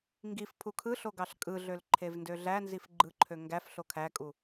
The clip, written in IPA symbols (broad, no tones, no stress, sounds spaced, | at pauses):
ŋ ɡ i f pʰ u kʰ ɯ ɬ o ɡ ɑ ɬ kʼ ɯ ɮ ø l ǃʰ e v n d ø ɮ æ n z i f ɡ͡ǃ ɯ ǃʰ ø ŋ ɡ æ f ɬ o kʰ æ kʼ u